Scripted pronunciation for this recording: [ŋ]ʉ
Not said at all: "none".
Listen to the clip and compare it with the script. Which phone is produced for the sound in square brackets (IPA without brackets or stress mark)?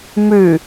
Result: m